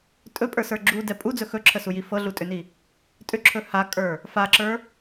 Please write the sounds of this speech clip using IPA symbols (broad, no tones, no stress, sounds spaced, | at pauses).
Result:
tʼ ɵ pʼ ə˞ s ə˞ ɡ͡ǁ u d ɛ pʼ u d͡z ɵ x ɵ ǁʰ ə s u j i f ɤ ɮ u tʼ ʏ n i | tʼ ʏ ǁʰ ɵ h a kʼ ə˞ | f a ǁ ə˞